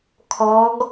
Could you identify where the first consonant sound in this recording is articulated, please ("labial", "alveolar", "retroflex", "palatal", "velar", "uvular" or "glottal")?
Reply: velar